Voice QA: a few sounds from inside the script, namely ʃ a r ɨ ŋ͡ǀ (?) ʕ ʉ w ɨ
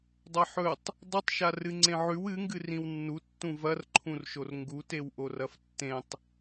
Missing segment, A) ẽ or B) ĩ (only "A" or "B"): A